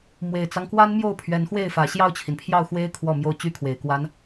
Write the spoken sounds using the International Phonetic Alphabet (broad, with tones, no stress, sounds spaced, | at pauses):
m w e˨˩ ɪ̯ t͡s ɑ˦ ŋ k w a˥ n m j o˥˩ ʊ̯ pʰ ɥ ɛ˧˥ n x w e˥˩ ɪ̯ f ä˨˩ ɕ j ɑ˥˩ ʊ̯ t͡ɕʰ i˩ n pʰ j ɑ˥˩ ʊ̯ x w e˥ ɪ̯ kʰ w ɔ˥˧ m j o˥˩ ʊ̯ t͡ɕ y˥ kʰ w e˨˩ ɪ̯ k w a˥ n